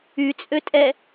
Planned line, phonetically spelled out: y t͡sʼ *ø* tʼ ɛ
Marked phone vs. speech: correct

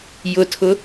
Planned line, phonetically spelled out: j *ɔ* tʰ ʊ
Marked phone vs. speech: incorrect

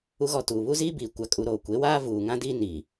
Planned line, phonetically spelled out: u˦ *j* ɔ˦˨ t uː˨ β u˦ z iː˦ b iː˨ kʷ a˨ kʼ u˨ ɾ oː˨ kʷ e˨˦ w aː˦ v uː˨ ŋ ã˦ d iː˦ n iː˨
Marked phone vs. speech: incorrect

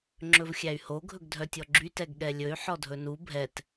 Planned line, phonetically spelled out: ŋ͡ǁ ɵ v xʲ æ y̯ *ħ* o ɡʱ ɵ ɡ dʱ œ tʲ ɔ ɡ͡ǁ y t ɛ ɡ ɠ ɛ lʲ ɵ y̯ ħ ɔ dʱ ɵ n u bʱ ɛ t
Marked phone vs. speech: incorrect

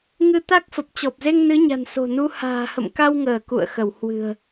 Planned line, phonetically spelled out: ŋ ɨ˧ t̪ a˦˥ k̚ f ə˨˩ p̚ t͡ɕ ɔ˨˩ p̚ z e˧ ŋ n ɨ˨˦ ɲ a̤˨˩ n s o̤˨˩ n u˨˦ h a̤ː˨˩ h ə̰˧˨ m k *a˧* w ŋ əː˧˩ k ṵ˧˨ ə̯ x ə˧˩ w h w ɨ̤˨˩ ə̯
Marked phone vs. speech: correct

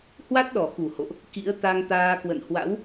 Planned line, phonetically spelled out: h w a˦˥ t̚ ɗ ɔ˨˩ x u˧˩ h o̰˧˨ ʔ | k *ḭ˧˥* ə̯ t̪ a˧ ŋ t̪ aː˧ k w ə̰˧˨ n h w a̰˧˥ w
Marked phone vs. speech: correct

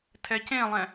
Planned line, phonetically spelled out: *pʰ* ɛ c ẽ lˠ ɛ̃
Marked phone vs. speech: incorrect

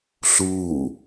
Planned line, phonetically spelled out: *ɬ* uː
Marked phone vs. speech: correct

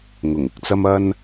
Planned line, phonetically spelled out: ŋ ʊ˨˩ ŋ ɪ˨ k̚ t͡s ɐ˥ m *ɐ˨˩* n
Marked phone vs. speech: incorrect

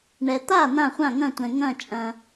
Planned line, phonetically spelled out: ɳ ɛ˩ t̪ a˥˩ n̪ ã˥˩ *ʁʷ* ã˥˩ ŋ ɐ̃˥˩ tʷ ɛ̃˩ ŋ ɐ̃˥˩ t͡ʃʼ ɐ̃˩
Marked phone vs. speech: incorrect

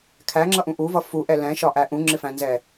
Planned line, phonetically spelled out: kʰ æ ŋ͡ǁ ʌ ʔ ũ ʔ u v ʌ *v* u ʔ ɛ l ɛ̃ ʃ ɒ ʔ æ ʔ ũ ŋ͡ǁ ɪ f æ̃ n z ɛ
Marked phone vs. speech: incorrect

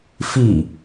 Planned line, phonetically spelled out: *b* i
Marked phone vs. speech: incorrect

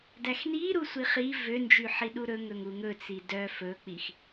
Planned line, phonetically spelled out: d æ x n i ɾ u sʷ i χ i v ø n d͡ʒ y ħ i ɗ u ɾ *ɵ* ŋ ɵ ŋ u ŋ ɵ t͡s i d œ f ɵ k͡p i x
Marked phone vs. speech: correct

